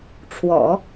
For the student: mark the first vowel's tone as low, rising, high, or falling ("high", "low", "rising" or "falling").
low